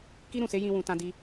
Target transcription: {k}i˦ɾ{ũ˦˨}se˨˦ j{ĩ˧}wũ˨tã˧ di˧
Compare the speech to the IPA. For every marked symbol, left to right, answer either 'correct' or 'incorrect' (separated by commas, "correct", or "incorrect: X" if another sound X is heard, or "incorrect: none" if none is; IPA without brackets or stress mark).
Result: correct, correct, correct